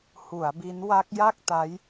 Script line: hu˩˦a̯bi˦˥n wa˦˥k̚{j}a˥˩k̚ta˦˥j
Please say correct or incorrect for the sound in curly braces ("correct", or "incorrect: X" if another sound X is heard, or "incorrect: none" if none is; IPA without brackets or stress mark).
correct